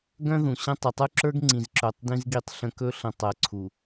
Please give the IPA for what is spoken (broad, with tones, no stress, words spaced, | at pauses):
ɡœ̃˦ðũ˨ɕə̃˦ tˤə˨tˤu˦ǁə˞˦ɡ ŋ͡ǀĩ˨zǁœ˨tˤ dĩ˦zɡi˦˨tˤ ɬə̃˦ kɵ˦ɬə̃˨ tˤɜ˨˦ǀʰu˨